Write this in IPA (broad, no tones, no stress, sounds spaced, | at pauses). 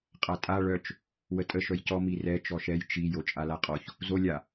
qʼ a tʼ a ɭ œ t͡ʃ | w ə tʼ ə ʃ œ j c ɔ m i r ɛ t͡ʃ ɔ ʃ ɛ j t͡ʃ i j o t͡ʃʼ a l a qʼ ɔ ç | z o lʲ a